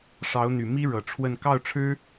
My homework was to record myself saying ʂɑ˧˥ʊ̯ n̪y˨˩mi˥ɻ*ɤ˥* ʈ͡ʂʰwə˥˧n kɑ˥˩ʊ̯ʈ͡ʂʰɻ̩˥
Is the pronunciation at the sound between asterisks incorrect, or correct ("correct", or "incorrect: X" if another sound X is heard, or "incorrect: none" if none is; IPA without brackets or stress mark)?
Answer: incorrect: ɤ˨˩